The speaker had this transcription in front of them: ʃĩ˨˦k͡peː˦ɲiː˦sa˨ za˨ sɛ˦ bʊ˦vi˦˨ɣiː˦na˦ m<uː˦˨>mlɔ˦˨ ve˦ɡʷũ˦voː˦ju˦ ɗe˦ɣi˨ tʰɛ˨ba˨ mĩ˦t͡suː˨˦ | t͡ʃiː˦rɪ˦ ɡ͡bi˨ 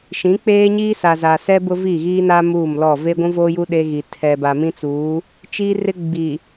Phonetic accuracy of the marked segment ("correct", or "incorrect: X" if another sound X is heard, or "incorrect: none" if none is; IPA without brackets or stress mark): correct